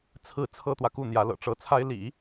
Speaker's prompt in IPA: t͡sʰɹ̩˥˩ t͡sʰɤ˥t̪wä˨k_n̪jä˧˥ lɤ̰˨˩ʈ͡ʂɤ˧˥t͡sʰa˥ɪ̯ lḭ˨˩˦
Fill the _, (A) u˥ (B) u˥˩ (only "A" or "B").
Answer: B